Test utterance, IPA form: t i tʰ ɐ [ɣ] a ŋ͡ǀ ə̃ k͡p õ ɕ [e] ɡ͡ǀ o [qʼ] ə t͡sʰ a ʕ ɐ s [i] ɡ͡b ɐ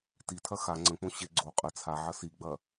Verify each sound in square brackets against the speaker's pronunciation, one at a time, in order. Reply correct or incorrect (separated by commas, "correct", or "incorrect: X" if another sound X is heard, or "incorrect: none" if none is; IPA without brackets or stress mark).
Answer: incorrect: x, correct, correct, correct